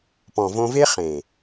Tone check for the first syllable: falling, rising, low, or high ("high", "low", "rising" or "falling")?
low